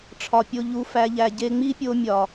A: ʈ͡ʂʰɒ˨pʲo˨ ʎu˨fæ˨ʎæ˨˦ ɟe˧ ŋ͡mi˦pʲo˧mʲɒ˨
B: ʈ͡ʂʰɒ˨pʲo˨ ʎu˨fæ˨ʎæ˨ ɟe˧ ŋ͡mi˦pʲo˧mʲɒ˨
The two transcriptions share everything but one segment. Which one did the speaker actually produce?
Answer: B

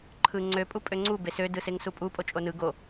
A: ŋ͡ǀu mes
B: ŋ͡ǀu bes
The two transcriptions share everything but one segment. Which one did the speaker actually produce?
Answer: B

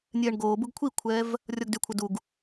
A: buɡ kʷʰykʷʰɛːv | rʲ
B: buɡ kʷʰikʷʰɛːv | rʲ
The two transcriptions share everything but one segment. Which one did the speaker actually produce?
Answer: B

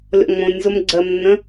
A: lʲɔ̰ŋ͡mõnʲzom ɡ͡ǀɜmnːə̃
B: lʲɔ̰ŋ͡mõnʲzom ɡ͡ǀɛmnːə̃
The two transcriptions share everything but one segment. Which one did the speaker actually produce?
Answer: A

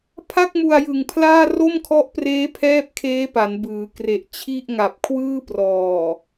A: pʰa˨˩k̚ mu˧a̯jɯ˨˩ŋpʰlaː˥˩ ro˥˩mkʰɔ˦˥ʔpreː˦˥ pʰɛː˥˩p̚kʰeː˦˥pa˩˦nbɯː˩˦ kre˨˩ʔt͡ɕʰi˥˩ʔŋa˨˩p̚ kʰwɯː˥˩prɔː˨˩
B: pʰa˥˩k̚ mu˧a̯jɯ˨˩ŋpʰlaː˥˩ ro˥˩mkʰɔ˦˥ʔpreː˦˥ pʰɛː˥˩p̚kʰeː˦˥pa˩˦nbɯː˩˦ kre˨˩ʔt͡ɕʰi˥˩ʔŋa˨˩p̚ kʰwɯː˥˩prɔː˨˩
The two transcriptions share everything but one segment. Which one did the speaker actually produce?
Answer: B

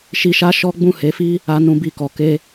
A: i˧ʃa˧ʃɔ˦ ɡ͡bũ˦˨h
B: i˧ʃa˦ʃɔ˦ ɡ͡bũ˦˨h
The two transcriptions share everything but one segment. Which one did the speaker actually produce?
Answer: B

